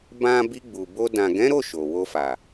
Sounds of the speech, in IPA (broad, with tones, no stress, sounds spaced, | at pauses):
b ã˦ b i˧ ɡ͡b u˨ b o˧ d ã˨ ɡ ɛ̃˨˦ ɾ o˦˨ ʃ o˨ w o˧ f a˨